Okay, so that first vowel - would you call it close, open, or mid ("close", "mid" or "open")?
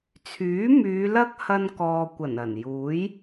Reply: close